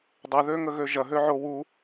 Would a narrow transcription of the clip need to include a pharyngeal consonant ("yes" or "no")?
yes